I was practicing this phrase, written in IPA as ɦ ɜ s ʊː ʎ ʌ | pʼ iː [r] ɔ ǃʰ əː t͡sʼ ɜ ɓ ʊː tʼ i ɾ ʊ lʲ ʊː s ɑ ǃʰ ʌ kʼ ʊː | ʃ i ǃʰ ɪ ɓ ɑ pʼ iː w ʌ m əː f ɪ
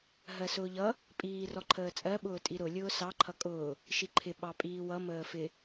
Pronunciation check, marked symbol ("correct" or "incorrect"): correct